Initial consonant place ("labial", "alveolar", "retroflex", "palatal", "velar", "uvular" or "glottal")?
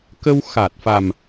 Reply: velar